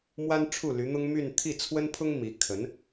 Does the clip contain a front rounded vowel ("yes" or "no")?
yes